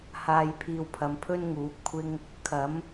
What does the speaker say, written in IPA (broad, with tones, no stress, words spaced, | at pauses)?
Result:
haː˧jpʰiː˧wpʰɐ˨˧m pʰɵ˥nŋuː˨˥p̚kʷʰɪ˥ŋ | kʰɐ˨˥m